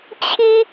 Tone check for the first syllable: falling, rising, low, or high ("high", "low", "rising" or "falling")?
high